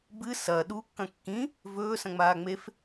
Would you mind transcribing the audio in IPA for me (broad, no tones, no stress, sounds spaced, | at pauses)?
b ɨ s ɐː ɗ u kː ɐ̃ kː ĩ | v ɵː s ɐ̃ ŋ͡m aː ŋ͡m e f